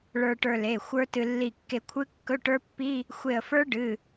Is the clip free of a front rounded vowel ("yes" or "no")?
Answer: yes